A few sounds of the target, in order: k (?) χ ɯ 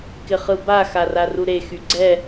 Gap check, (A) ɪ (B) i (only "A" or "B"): A